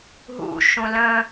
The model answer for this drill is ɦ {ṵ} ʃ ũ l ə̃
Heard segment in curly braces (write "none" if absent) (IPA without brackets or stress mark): ṵ